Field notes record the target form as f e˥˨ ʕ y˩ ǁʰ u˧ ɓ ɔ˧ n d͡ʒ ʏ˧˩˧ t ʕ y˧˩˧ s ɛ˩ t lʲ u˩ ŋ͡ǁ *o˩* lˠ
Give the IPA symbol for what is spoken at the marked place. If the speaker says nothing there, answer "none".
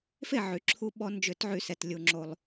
o˩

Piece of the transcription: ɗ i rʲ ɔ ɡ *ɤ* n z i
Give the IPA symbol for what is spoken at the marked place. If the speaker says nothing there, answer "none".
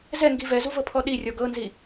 ɤ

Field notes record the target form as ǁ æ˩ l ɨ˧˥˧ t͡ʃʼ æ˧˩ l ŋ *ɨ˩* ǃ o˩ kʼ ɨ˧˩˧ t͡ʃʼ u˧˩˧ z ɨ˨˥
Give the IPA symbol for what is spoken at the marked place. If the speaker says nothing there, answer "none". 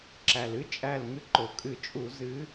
ɨ˧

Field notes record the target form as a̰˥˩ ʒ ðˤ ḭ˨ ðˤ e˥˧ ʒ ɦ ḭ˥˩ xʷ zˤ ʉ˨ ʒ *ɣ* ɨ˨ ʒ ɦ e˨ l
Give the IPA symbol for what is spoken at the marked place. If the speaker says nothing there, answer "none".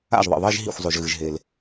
ɣ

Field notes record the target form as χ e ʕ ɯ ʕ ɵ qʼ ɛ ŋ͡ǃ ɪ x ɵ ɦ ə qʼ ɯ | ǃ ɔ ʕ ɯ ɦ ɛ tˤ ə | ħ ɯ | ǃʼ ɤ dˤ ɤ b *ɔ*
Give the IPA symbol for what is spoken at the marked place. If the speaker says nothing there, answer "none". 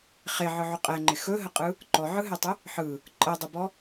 ɔ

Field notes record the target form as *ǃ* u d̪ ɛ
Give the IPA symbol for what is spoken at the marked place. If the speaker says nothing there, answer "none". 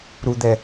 ɾ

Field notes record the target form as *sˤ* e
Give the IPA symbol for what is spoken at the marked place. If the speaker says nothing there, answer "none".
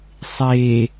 sˤ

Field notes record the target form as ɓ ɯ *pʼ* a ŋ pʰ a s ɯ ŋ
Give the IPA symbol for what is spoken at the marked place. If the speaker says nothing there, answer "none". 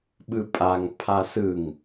pʼ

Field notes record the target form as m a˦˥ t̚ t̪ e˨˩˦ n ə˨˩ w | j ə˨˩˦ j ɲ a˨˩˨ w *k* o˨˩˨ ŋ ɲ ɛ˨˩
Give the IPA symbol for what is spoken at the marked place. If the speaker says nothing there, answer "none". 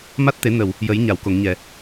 k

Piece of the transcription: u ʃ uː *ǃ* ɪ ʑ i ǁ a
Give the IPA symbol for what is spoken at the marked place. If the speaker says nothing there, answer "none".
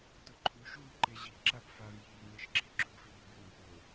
ǃ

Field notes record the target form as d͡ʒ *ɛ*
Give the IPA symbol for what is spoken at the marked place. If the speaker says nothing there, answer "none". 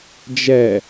ɛ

